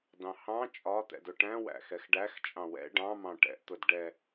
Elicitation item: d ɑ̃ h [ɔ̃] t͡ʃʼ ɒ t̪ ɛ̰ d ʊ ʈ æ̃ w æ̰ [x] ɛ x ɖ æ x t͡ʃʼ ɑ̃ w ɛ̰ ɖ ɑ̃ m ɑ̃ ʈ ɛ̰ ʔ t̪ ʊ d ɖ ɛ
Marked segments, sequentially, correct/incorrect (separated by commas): incorrect, correct